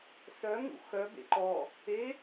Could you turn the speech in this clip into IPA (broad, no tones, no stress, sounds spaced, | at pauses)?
s œ ŋ ṵ x œ b ḛ ǃ ɔ | e